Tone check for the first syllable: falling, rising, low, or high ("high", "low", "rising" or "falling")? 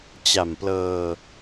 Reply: low